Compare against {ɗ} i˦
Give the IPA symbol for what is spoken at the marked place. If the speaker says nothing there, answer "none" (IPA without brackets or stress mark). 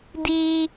d